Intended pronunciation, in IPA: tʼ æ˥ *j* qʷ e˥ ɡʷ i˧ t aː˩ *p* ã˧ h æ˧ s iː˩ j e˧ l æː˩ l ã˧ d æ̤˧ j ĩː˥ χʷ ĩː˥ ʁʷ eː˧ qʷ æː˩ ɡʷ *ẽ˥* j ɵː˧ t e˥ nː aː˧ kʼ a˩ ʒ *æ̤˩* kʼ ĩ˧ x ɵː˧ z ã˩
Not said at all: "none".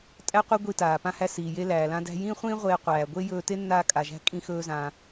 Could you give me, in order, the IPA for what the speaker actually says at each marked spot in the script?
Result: none, p, e˥, æ̤˧

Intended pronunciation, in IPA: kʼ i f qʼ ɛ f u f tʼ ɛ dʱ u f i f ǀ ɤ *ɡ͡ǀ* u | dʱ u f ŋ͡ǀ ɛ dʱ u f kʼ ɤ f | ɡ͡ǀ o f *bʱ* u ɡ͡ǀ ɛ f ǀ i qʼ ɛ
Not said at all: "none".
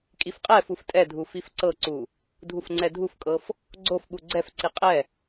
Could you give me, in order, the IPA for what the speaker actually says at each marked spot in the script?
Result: ǀ, ɓ

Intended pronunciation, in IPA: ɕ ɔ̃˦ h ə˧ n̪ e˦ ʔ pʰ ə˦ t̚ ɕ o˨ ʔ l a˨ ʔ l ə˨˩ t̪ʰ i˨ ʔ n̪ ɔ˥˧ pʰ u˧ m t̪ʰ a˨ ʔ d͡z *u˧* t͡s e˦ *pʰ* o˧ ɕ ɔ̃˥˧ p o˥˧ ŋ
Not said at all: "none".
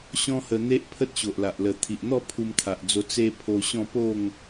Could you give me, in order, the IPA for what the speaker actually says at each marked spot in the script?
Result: o˧, pʰ

